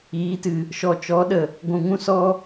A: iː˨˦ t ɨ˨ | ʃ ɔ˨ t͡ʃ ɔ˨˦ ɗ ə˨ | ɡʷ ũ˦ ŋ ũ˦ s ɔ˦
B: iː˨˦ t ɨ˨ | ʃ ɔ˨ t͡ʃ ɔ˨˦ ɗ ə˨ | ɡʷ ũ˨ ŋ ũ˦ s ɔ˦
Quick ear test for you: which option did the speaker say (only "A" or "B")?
B